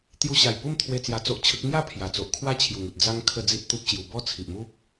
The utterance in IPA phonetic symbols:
t̪ j u˧ ɕ a˨˩ j p u˥˧ m t̪ʰ w e˧ t͡s j a˧ t͡s o˦ ʔ t͡ɕʰ ə˦ k̚ ŋ j a˥˧ pʰ j a˨˩ t͡s o˨ ʔ kʰ w a˦ t͡ɕʰ j u˨˩ ŋ u˨ t̚ d͡z a˦ ŋ kʰ ə˥˧ d͡z i˦ t̚ t̪ u˦ p̚ ɕ j u˧ b ɔ˥˧ t͡sʰ i˨ ʔ m u˦ p̚

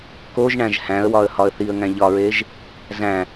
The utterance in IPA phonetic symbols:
k o ʒ ɳ æ̃ ʒ h æ̃ ə̯ w ɒ ə̯ h ɒ ə̯ θ i ə̯ ŋ æ̃ ʎ ɒ ɹ e ʒ | z æ̃

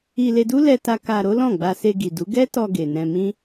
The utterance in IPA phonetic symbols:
i˧ l e˧ d u˦ l ɛ˧ t a˧ k a˧ ɾ o˦ l ɔ̃˦˨ ɡ͡b a˧ s e˧ ɡ i˨ d u˨˦ ɡ ɛ˦ t ɔ˧ ɡ e˨ n ɛ̃˧ m ĩ˦

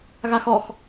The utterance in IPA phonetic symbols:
ɣ a x ɔ x

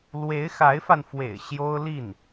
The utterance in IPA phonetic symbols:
l w e˧˥ ɪ̯ x a˧˥ ɪ̯ f a˧ n f w ḛ˨˩ ɪ̯ ɕ j o˥ ʊ̯ l i˥˩ n

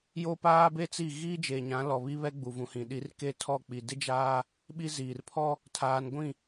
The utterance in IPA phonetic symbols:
j o˦ p aː˦ b e˦ t͡s i˦˨ ɣ iː˦ d͡ʒ eː˨ ɲ ã˨˦ l ɔ˨ β i˦ β ɛ˦ ɡ͡b u˨ v ũ˨ h ĩ˨ ɗ i˨˦ r k e˦ tʰ ɔ˦˨ k͡p i˨ d ɪ˦ d͡ʒ aː˦ | ɓ i˦ z iː˨ r pʰ ɔ˦ | tʰ aː˨ n ɡʷ ĩ˦˨

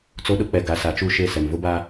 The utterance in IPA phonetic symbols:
t͡s o˦ ɗ ʊ˦ k͡p ɛ˨ ɡ a˨ s a˨ t͡ʃ u˦˨ ʃ e˦˨ s ɛ˨ m v ʊ˦ b a˦

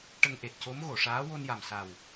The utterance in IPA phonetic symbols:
ʈ ə˧ ŋ ʔ e˨˩ t̚ c o˧˥ m ɣ o˨˩˨ ʂ aː˧˥ w o˧ n j a˨˩ m s a˨˩ w

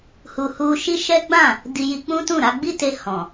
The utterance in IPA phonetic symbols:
h u˨ h u˧ ʃ i˦ ʃ ɛ˦ ɡ͡b ã˦˨ | d i˧ j i˧ k͡p ũ˦ t ũ˦˨ ɾ a˧ ɡ͡b i˦ t e˧ h ɔ̃˨

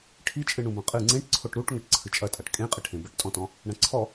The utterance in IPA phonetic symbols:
ʈʰ i t͡ʃʼ ɨ ɳ ũ b ɐ̃ qʼ ɨ ŋ͡ǀ ẽ ʈ ǀʰ o ʈ ɾ u ʈ ŋ ɐ ʈ ǀʰ ɨ t͡ʃʼ ɐ tʼ a ʈ kʼ ẽ qʼ ɨ ʈʰ ẽ b ɘ ʈ tʼ ɔ̃ t ɔ̃ | ɳ ɐ̃ ǀʰ ɔ

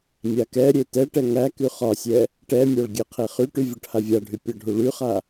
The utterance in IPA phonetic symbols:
mʲ a k ɛ ɾʲ e t ɛ ʈ ɛ ŋ æ k y χ ɒ sʲ ɛ | ʈ ɛ mʲ ɔ ɭ ɡʲ ɛ qʰ e χ y ʈ y vʲ ɔ ʈ h a vʲ a ɖʱ y pʲ ɒ ɖʱ u ɭ y χ a

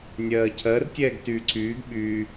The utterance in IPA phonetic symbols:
nʲ ɜː cʰ ɜ r tʲ ɛː ɡ t yː ǀʰ yː ɡ ɓ yː

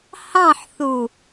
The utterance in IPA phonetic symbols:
h ɑ̃ ħ θ u

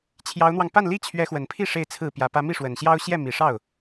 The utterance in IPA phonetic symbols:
t͡ɕʰ j ɑ˧˥ ʊ̯ n̪ w ɑ˧ ŋ p a˥˩ n l i˥ t͡ɕʰ ɥ ɛ˧˥ x w ə˨˩ n pʰ i˥˧ ʂ e˥˧ ɪ̯ t͡sʰ ɹ̩˥˩ p j ä˧˥ p ä˥ m i˥˩ ʂ w ə˨˩ n ɕ j ɑ˥ ʊ̯ ɕ j ɛ˥˩ m i˨˩ ʂ ɑ˥˩ ʊ̯

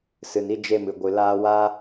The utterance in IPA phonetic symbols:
s ɨ˨ n i˧ d͡ʒ e˧ m ɨ˨ ɡʷ ɨ˨ l aː˧ w a˦

